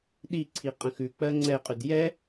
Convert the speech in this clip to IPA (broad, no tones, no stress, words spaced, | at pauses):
ɗiǀʰi qʼə̃xʉk͡pɜ ŋ͡ǀɛqʼʉd jɛ